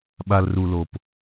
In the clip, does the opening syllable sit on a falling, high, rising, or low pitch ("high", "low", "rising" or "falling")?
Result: low